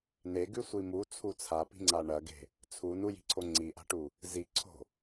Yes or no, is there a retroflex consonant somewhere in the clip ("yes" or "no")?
yes